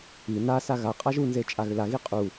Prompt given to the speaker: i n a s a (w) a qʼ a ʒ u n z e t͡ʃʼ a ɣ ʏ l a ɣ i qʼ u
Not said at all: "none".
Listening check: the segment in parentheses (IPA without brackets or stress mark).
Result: ɣ